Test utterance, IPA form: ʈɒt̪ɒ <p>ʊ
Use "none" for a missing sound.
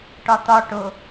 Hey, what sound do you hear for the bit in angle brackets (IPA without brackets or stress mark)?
ʈ